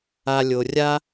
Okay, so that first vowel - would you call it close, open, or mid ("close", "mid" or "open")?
open